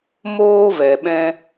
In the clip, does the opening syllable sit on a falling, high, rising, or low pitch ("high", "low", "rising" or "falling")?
high